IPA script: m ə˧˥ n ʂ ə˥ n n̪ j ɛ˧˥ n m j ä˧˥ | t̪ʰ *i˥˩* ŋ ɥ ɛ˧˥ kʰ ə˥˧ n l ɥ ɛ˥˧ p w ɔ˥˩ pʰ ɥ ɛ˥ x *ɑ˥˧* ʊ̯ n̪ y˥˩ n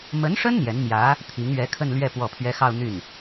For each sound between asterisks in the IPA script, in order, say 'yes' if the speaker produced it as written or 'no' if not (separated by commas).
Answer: no, yes